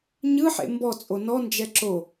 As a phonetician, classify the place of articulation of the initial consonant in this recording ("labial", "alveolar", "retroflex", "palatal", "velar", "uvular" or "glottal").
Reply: palatal